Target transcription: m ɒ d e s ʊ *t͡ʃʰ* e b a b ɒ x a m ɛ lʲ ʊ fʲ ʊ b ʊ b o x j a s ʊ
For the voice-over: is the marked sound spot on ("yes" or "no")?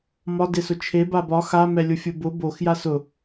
yes